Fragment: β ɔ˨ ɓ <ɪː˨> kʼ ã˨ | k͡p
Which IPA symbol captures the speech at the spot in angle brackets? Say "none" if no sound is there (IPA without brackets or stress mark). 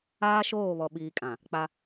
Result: iː˨